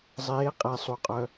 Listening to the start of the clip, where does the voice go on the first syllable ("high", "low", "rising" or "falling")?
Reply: rising